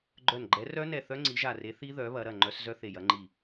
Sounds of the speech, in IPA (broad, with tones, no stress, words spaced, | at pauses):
ɡ͡ǃœ˧˩nɡ͡ǃɛ˨˦rœ˦˥nɛ˧˩ θœ˦˥ŋ͡ǀi˨˦ʒa˧˩re˨˦ θi˦˥ðœ˨˦ βɐ˨˦ɾɐ˧˩ ŋ͡ǃœ˨˦s zœ˦˥θe˧˩jɐ˨˦ŋ͡ǃi˧˩